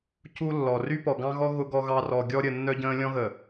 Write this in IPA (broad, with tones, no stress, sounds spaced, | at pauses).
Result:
c u˦ lː ɔ˨ r y˦ p ɔ˨ ɡ ɑ̃˦ ɣ ɔ˦ ɣ ʊ˦ ɡ ɔ˦ ɣ ɑ˦ r ɔ˨ ɡʲ ɔ˦ ɾʲ ə˨ nː œ˦ ɟ ə̃ː˦ lʲ ɔ̃˦ ɣ ə˨